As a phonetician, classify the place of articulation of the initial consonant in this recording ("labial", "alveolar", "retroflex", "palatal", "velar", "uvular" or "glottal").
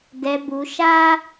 alveolar